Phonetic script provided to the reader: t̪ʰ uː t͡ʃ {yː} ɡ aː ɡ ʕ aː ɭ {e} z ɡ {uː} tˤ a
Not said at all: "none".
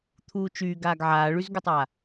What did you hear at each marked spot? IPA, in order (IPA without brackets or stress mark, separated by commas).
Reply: yː, y, u